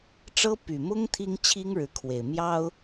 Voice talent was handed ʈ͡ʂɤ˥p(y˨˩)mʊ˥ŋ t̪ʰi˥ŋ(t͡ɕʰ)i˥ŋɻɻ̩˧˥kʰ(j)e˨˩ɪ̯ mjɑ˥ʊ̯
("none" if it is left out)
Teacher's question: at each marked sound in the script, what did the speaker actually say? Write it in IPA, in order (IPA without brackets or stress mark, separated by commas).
y˨˩, t͡ɕʰ, w